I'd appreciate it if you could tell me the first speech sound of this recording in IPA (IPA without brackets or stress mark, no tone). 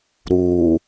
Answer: ɾ